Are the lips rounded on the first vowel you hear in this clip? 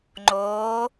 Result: yes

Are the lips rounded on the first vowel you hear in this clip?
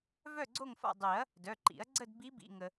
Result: yes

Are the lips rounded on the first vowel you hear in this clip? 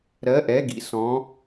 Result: no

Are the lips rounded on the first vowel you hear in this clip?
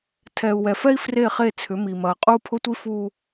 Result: no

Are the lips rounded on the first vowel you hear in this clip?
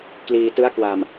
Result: no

